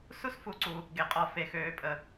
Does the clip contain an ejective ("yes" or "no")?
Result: yes